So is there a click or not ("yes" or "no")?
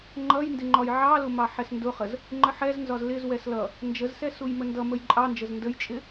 yes